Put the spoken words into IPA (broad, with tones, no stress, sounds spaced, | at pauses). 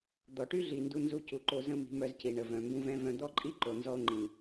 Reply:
d̪ ɔ˨ ʈ y˦ ɮ i˨ n d u˧ n z u˧ c u˨ ǃ o˧ z ə̃˦ m i̤˧ m œ˧ z c i˨ ɳ ə˨ v œ̃˨ m b ũ˧ v ɛ̃˦ v œ̃˧ d̪ ɔ˦ ǃʼ i˦ ǃ o˨ n z ɔ˧ o̯ ŋ͡ǃ ĩ˨